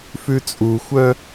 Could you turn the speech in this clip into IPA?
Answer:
f ʉ t͡sʼ u xʷ œ

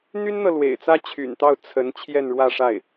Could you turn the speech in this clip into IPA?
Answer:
n̪ y˥ n n̪ ɤ˨ l w ḛ˨˩ ɪ̯ t͡s ä˥ t͡ɕʰ y̰˨˩ n t̪ ɑ˥˩ ʊ̯ t͡sʰ ə˧˥ n t͡ɕʰ j ɛ˥˧ n ɻ w ä˥˧ ʂ a˥˩ ɪ̯

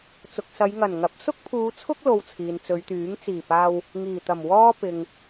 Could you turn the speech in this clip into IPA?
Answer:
t͡s ʊ˨ k̚ s ɐ˨˧ j ŋ ɐ˨˩ n ŋ ɐ˨˥ p̚ s ʊ˥ k̚ pʰ uː˨˧ t͡sʰ ʊ˥ k̚ l o˧ w t͡sʰ iː˨ n t͡s ɵ˨˧ ɥ t̪ yː˨˥ ŋ t͡s iː˨˩ p aː˧ w | ŋ iː˨˩ t̪ ɐ˨˩ m w ɔː˥ p ɪ˨ ŋ

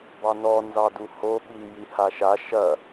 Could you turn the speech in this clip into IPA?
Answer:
b ɑ n ɔ n z ɑ d u h o ɓ i j i h a ʃ a ʃ ɐ

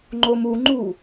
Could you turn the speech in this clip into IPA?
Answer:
ŋ͡ǃ o m u ŋ͡ǃ u

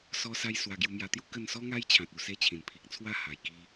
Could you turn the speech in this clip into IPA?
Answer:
s ɔ˧ s a˧ j s w a˧ ɡ j u˧ m j a˧ t̪ j u˦ k ə˥˧ n s ɔ˧ ŋ a˧ j t͡ɕʰ ã˨ t̚ u˨˩ s e˥˧ t͡ɕʰ ĩ˨˩ n pʰ i˨ k̚ t͡sʰ w a˥˧ h a˨˩ j k i˦

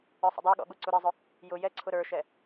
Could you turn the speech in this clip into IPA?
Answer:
ə˞ sˤ ə̰ dˤ ə˞ ɠ ɔ̰ ɠ u ǀ u ɾ i zˤ ʊ | j ʊ j ɛ ǀʰ ʊ ɾ ə˞ ʃ ɛ

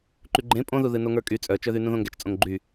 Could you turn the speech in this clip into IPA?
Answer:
ǃ y ɡ͡ǃ ẽ pʼ õ ð u ð ɨ n o ŋ ə˞ kʼ y t͡sʼ œ t͡ʃ œ ð y n ũ ð õ ŋ ɡ ɛ t͡ʃ t͡sʼ õ ŋ ɡ͡ǃ y

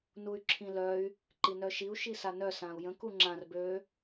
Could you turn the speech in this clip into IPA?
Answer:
n u y̯ ǁʰ ĩ l œ y̯ | ǃ i n œ ʃ i u̯ ʃ i s a n œ s ã u̯ j ə̃ k u ŋ͡ǁ ã r b ø

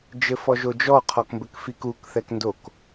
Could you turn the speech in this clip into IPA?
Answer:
d͡ʒ ɘ f ɔ ʒ o d͡ʒ ɔ qʰ ɔ k m b ɘ k f i k u k θ ɛ k n d o k

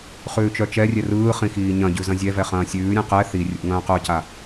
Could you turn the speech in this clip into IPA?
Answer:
χ ʉː t͡ʃ œ t͡ʃ ɛ rʲ ɛ r ɯː χ ĩ x iː ɲ ɐ̃ ɟ ʉ z ɐ̃ zʲ ɛ v ɛ χ ɐ̃ː sʲ ʉː ɾʲ ɛ̃ q ɛ θ i rʲ ṵ ŋ ɐ̃ː q œ c a

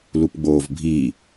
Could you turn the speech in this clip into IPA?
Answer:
l u p ɡ͡b oː v bʱ i

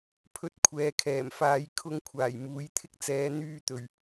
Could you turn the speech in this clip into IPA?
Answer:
pʰ ɵ˧ t̚ kʷʰ ɛː˨ kʰ ɛː˨˩ m f aː˧ j kʰ ʊ˧ ŋ kʷʰ aː˨˩ j m uː˨˥ j t̪ʰ ɪ˥ k̚ t͡s ɛː˨˧ n̪ yː˧ t̪ ɵ˨˩ ɥ

